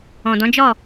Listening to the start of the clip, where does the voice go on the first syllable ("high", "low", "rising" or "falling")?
low